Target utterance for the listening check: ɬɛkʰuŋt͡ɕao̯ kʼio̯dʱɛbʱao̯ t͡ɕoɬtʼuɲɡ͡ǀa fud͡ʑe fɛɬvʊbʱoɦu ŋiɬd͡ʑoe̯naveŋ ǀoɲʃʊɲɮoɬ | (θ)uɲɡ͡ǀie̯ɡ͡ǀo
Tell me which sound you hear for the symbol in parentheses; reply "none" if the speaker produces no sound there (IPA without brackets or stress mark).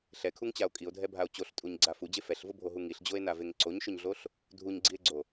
dʱ